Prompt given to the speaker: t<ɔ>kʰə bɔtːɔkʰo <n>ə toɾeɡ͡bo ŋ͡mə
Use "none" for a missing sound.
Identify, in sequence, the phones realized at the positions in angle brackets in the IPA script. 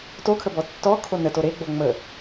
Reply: o, n

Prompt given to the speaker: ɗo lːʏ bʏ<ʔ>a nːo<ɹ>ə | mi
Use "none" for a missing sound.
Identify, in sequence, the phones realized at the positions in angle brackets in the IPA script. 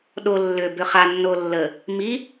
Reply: χ, lː

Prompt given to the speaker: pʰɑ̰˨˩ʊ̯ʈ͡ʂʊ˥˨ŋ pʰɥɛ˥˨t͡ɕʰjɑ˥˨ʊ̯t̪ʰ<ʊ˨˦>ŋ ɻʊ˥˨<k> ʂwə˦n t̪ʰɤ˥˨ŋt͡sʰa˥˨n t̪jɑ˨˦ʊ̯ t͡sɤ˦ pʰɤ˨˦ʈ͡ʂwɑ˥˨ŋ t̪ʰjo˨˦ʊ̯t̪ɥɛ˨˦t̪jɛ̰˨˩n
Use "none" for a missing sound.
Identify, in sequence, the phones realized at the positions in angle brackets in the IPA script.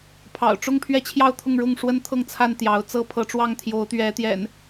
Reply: ʊ˥˨, ŋ

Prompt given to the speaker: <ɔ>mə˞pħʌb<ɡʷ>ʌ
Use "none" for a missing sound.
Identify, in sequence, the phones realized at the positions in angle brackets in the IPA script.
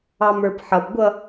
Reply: ɑ, ɡʷ

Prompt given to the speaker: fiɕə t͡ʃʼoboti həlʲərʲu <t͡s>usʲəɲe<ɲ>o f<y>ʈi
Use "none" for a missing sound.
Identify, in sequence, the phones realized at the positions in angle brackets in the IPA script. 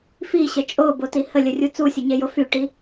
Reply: t͡s, j, y

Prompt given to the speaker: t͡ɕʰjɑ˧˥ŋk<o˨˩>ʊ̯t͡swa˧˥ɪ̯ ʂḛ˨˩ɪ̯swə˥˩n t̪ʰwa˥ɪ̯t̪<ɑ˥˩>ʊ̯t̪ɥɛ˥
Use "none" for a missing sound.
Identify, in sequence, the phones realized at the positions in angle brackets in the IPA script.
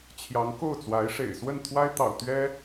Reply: o˥˩, ɑ̰˨˩

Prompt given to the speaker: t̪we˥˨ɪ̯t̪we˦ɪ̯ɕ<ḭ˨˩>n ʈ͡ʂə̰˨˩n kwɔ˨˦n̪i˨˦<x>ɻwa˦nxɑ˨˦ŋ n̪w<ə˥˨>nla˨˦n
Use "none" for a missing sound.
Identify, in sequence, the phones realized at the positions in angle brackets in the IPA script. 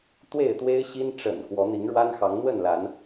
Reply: i˦, ŋ, ə˥˨

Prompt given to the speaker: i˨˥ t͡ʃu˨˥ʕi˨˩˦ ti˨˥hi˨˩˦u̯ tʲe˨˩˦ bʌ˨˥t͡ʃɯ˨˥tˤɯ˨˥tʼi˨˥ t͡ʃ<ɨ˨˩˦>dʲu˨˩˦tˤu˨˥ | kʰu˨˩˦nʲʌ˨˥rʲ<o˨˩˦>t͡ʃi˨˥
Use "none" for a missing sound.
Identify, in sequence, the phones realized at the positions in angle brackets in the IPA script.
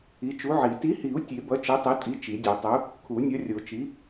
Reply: i˨˩˦, o˨˩˦

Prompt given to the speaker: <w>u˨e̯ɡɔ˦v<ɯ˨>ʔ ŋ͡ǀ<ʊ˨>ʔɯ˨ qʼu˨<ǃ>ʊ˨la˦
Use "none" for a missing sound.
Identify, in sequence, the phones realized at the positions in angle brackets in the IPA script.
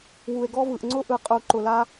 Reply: w, ɯ˨, ʊ˦, ǃ

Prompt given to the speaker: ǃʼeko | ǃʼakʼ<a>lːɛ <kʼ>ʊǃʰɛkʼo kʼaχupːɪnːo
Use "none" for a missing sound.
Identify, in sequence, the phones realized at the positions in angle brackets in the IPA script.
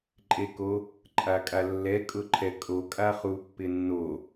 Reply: a, kʼ

